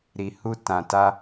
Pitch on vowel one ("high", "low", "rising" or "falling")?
low